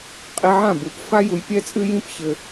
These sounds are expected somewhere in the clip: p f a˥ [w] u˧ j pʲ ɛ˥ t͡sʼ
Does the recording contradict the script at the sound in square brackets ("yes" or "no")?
yes